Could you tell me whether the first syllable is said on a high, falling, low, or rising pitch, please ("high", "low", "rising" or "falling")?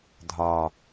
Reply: low